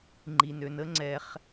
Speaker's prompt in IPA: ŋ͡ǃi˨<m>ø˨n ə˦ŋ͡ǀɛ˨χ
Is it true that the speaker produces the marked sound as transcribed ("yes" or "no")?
no